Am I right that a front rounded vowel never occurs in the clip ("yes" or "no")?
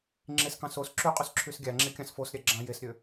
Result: no